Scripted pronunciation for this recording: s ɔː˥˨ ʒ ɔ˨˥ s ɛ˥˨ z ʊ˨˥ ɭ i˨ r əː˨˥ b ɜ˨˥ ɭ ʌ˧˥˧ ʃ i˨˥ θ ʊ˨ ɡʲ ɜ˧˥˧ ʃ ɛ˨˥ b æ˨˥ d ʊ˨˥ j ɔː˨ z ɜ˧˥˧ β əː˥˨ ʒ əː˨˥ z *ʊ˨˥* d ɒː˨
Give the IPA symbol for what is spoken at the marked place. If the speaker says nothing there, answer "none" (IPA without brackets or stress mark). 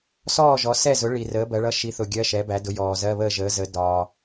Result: ə˨˥